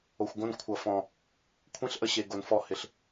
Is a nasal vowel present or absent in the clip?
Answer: present